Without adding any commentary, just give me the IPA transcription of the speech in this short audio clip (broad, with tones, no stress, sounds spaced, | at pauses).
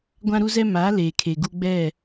ɡʷ ã˦ ɾ u˦ z ɛ˦ m aː˨˦ l eː˨ kʰ e˨ ɡ u˦ ɡ͡b ɛ˦˨